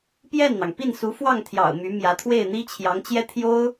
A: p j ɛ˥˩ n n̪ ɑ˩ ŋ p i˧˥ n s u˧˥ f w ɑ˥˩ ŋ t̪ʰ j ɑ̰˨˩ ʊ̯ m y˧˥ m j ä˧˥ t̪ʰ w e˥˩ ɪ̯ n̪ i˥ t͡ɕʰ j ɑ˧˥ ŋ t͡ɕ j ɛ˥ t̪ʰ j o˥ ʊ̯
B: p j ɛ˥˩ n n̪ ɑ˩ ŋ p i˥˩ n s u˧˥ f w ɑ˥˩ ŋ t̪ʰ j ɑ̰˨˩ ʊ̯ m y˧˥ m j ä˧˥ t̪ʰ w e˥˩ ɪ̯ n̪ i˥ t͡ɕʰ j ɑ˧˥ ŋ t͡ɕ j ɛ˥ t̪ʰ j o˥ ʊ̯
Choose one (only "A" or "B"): B